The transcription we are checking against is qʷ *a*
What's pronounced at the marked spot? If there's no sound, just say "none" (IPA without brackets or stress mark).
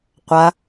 a